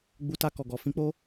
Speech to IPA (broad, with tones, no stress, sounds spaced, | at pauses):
ɡ͡b u˧ t a˧ k ɔ˨ ɡ ɔ˨ f ĩ˧ k͡p o˦